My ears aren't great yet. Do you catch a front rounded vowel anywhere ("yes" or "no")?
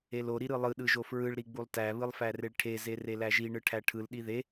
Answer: no